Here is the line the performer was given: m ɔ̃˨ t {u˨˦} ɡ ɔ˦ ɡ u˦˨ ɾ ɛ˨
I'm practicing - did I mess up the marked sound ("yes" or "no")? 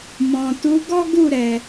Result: no